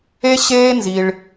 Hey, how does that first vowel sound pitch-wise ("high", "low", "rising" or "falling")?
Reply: high